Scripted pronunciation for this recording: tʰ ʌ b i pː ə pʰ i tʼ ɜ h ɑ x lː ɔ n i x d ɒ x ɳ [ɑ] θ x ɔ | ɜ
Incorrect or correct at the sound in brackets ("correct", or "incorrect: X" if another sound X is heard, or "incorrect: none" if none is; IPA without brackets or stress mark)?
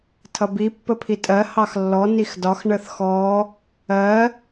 incorrect: ə